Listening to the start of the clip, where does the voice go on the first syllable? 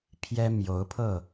high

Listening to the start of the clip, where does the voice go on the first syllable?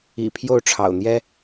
low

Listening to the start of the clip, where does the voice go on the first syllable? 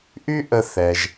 high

